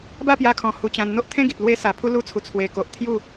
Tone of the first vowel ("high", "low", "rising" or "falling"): falling